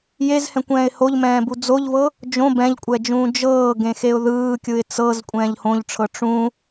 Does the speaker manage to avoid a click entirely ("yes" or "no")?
yes